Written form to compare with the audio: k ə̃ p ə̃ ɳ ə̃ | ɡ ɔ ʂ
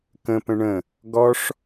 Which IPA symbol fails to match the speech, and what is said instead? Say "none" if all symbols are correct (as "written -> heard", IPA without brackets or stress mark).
none